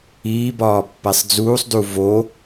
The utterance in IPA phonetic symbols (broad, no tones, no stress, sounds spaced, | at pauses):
iː b ɒː pː æ sˤ d͡z uː sˤ d u v o